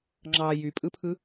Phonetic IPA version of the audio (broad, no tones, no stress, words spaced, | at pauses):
ŋ͡ǁɑ jypʼɯpʰɯ